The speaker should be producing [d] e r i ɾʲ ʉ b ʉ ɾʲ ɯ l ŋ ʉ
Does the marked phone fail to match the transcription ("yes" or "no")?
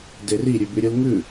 no